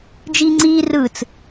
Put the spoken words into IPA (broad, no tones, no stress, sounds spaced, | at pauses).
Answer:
d͡ʒ iː ŋ͡ǀ iː r ɯ t͡s